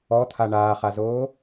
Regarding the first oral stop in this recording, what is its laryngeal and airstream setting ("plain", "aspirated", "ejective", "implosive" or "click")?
aspirated